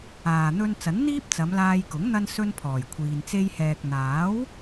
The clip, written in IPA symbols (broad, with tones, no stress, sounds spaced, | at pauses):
aː˨ n̪ ɵ˧ n t͡s ɐ˨˥ n n̪ iː˥ p̚ t͡s ɐ˨˧ m l aː˧ j k ʊ˨˥ ŋ n̪ ɐ˥ n s ɵ˥ n pʰ ɔː˨˩ j kʷʰ iː˨ n t͡s e˧ j h ɛː˨ k̚ n̪ aː˨˥ w